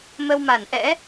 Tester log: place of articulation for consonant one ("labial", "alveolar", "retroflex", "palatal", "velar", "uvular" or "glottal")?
labial